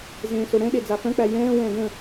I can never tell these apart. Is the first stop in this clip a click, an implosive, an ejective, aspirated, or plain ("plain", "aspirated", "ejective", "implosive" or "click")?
implosive